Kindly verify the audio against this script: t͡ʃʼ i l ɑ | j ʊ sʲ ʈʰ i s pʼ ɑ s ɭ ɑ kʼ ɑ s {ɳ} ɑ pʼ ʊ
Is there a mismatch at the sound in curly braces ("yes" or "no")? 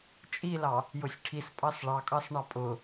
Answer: no